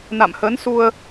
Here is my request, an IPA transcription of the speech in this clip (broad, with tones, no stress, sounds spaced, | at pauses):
n a̰˧˨ m h ə˨˦ n s u˧ ə̯